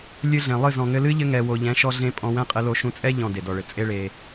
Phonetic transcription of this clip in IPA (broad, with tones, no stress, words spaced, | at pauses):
lʲɨ˧ɮẽ˨ lˠɨ˦˨ zɔ̃˨ŋɘ˧lɨ˦ ʎɘ˧ŋɛ˨wo˨ ʎɛ̃˨˦ʃɔ˧ɮẽ˧ pʼɔ̃˧wɛ̃˦qʼɘ˧lo˧ ʃũ˧t͡sʼɛ˦ ʎɔ̃˨ de˨dɔ˨ɭɘ˨ t͡sʼe˦ɭe˧